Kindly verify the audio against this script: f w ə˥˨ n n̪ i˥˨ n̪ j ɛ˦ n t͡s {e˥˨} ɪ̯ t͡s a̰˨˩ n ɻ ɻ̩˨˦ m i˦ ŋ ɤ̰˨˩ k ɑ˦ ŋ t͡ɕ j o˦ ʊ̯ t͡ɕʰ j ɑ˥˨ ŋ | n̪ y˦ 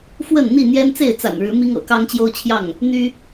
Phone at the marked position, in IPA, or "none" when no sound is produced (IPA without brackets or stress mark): e˥˨